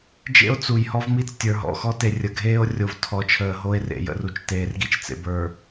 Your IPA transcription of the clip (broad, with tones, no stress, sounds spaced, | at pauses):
d͡ʒ ḛ˦ o̯ t͡s u˨ j h ɔ˦ v m i˦ t͡s tʲ ə˞˨ ɦ ɔ̰˨ x ɔ˦ t e˨ rʲ ə˨ ɡʱ eː˦ o̯ rʲ o˨ v tʰ ɔ˨˦ t͡ʃʰ əː˨ ɦ o˦ e̯ r ḛ˨ j ə̰˨ r u˨ t͡ʃ t eː˨ r ɡ i˦ t͡ʃ t͡s ḛ˨ b ə˞˨